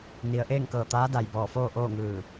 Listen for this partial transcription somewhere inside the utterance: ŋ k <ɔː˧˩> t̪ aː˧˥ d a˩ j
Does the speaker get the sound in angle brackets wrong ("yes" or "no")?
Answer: yes